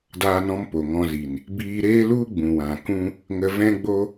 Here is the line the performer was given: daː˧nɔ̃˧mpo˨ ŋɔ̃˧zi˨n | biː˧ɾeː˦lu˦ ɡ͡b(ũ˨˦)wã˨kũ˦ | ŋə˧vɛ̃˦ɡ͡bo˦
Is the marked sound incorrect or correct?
incorrect